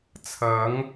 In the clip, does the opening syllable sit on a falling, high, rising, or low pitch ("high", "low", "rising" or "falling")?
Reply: rising